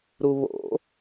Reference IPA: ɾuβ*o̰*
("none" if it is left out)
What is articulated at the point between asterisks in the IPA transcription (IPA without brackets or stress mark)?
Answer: o̰